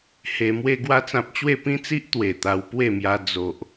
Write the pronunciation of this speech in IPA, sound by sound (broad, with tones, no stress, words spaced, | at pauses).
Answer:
he˧ mwe˧ɡwa˧t͡sã˨p̚ t͡ɕwe˥˧pĩ˦t͡si˦ʔ t̪we˨˩t̪a˧wpwe˥˧mja˧ d͡zo˨ʔ